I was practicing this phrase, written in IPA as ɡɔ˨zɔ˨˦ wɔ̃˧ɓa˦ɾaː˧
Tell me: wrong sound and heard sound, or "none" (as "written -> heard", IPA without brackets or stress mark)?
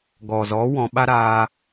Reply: none